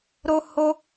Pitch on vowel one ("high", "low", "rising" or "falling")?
high